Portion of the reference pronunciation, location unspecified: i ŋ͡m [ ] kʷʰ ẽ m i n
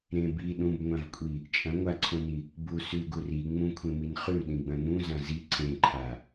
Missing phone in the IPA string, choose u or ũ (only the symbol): ũ